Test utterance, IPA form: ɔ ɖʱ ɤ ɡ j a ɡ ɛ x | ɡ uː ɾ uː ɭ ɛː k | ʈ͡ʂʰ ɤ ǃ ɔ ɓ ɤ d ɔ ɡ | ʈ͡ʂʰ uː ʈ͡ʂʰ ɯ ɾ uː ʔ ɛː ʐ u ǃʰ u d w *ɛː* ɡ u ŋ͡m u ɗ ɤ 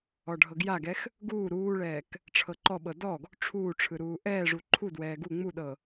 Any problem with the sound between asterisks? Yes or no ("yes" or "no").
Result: no